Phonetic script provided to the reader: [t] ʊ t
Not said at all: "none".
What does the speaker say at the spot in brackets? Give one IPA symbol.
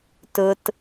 t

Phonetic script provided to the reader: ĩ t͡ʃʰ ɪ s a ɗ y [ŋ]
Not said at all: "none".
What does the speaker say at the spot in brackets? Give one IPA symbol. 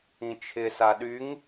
ŋ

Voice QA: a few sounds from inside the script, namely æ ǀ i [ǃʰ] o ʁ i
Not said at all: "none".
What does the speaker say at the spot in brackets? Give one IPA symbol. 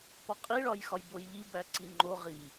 ŋ͡ǃ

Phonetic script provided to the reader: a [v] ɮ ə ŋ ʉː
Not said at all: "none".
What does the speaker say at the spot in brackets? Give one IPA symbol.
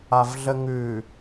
v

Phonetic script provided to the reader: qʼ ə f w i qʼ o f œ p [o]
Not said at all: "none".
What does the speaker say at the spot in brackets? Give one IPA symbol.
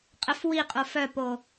o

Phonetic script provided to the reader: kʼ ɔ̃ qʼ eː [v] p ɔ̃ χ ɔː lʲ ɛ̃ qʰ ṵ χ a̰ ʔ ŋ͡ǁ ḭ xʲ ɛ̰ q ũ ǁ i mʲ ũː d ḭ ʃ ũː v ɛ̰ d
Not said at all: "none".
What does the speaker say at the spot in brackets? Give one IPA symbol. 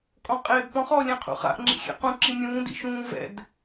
b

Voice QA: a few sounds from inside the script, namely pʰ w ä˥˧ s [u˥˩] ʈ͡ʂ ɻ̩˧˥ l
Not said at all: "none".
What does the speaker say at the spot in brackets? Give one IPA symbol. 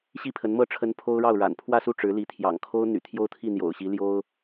u˥˩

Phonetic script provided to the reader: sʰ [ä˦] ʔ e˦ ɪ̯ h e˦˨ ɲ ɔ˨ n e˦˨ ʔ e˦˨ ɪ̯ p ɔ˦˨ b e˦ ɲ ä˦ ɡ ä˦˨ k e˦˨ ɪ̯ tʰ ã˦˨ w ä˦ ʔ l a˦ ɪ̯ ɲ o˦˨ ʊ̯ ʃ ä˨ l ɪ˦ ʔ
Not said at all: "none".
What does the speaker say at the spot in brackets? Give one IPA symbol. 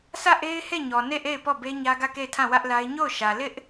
ä˦˨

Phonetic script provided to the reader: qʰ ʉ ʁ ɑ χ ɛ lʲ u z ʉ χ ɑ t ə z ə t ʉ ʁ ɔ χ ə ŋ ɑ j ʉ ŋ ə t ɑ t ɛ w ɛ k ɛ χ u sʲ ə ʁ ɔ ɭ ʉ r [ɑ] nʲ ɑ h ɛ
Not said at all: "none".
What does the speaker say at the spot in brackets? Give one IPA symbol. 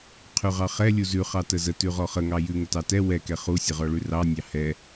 ɑ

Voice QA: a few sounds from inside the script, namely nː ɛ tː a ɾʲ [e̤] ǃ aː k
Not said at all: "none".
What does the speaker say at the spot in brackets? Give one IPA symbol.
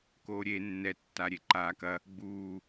e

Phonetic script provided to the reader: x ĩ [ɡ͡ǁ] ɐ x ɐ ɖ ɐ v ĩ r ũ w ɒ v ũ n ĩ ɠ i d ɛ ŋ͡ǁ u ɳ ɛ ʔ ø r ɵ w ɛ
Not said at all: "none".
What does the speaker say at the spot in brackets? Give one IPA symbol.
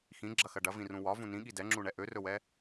ɡ͡ǁ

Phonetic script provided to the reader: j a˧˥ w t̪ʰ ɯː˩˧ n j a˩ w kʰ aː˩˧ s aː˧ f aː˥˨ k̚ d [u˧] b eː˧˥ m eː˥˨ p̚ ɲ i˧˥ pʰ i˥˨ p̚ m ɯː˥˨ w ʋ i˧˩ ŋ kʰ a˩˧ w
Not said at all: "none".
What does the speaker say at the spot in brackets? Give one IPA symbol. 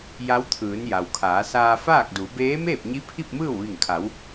u˩˧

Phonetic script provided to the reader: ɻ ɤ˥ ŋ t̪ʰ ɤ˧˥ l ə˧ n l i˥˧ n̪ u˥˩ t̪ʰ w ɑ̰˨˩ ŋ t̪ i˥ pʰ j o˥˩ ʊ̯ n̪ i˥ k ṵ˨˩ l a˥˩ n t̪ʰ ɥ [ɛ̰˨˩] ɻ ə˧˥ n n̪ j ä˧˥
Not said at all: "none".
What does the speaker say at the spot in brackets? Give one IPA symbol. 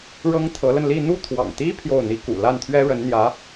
ɛ˥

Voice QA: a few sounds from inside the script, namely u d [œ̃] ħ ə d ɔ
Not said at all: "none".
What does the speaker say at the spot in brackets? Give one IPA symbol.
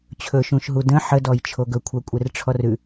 ə̃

